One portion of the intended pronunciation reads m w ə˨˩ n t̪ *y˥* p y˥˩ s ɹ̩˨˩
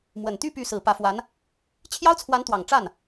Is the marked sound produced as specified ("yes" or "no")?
no